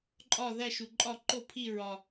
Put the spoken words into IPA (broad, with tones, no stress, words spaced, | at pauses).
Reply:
ǃʼɒ˥˨ ðæ˥˨ʃu˨˩ǃʼɒ˥˨ ǃo˥˨pʰi˥˨ ɹɒ˨˩